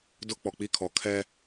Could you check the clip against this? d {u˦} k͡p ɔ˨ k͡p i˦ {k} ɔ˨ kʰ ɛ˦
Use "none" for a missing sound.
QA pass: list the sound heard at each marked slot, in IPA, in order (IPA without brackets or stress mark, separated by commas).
ʊ˦, kʰ